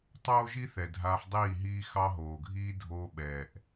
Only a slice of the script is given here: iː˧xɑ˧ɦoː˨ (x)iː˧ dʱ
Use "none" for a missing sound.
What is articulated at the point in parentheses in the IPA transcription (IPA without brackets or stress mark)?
ɡʱ